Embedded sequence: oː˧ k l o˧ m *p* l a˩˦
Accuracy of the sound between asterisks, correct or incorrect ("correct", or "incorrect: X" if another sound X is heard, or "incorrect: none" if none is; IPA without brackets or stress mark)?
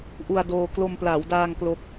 correct